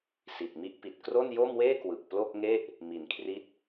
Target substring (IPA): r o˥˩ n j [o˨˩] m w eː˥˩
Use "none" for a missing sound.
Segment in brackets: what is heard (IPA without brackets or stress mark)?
o˥˩